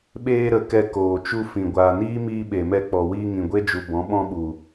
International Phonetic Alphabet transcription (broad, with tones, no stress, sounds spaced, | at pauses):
ɓ eː˧ ɾ ə˨ k ɛ˧ k oː˨ t͡ʃ u˧ f ĩ˨ ɡʷ aː˨ n iː˦ m iː˧ ɓ e˨ m ɛ˧ k͡p ɔ˨ w iː˧ ŋ ĩ˨ ɡʷ e˦ d͡ʒ u˨ b ɔ̃˨˦ ɓ ɔ̃˦ ɓ u˨